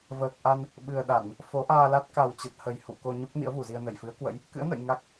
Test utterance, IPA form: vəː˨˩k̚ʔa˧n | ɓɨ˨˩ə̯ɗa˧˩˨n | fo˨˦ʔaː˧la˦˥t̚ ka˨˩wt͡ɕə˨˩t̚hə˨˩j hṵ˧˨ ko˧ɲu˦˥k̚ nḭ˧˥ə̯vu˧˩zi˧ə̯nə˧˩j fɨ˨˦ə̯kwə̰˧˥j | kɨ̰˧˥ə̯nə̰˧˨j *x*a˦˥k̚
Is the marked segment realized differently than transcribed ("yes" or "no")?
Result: yes